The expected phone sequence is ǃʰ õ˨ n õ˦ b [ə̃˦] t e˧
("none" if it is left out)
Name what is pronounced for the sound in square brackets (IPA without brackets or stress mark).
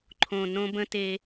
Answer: ə̃˦